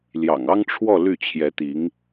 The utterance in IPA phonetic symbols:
ljɑ̰˨˩ŋɑ˥ŋʈ͡ʂʰwɔ˥˧ ly˥˩t͡ɕʰjɛ˧˥t̪i˧˥ŋ

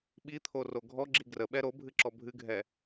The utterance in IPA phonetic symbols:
ɓit̪ʰoro ɡʱɔɡ͡ǁi ɡrəɓɛ ɾobʱɨǁɔ bʱɨɡʱɛ

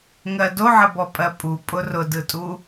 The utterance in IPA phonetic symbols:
ŋɜdoʕəbɔ pʼɜpʼu pʼʊrʊdɯtʼu

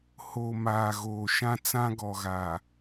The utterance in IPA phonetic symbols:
ho˨ maː˨ɣoː˨ʃã˦ t͡sã˦ɡɔ˨ɣaː˨

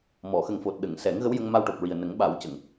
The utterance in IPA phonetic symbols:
mɔ˨˩˨ xə˨˩ŋfo˨˩t̚ɗə˨˩˨ŋ sɛ˨˩˦ŋ ɣə˧˥wjə˧ŋ ma˧wʈo˨˩p̚ɹi˨˩ə̯ nə˨˩˦ŋɓa˨˩˦wcə˨˩˨ŋ

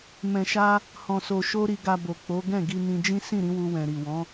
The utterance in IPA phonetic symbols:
mɛ̃˨ʃa˧ | hɔ̃˨so˨ʃo˧ ɾi˨ɡa˨ bo˨k͡po˨˦ ɡɛ̃˦˨ɡi˧nĩ˧d͡ʒĩ˦ sĩ˦˨ɾĩ˨˦ wu˧wɛ̃˨ɾi˨ wɔ̃˨˦

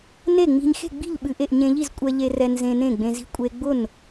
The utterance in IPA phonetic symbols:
ne˥˩ŋ͡mi̤˧ɲ xe̤˥˩ɡ͡bi̤˥˩ʎ ɓɨ˧ʔe˥˩ʔ ɲẽ˧ʎi˥˩zkʷʼɛ˧ʎe˧ rɛ˧nzẽ˧ nẽ˥˩ɡ͡bẽ˧zi̤˥˩ kʷʼe˧ɡ͡bʊ˥˩n

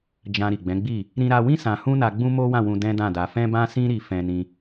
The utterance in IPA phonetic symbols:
d͡ʒã˧ ɾi˨ɡ͡bɛ̃˨˦ɡ͡bi˦˨ | ɾĩ˧ɾa˧wĩ˦ sã˧hũ˦na˧ ɡ͡bũ˦mo˦wã˦˨wũ˧ dɛ̃˦dã˦˨da˧ fɛ̃˦bã˦sĩ˦ ɾi˧ fɛ̃˦nĩ˦

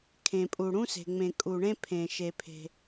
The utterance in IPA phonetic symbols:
kʰẽ˩pʼu˩ ɽũ˦se̤˩ŋ͡mẽ˩ kʼu˩ɳẽ˦pʰẽ˩ ʃe˩pʰe̤˩

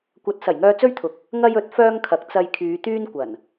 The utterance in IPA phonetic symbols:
kʷɐ˨˥t̚ sɐ˨˩jŋœː˧t͡sɵ˥ɥt̪ʰʊ˨k̚ | ŋɐ˧jɵ˨˥t̚ fœː˥ŋkʰɐ˨˥k̚ t͡sɐ˧jkʰyː˨˧t̪yː˥n kʷɐ˨˩n

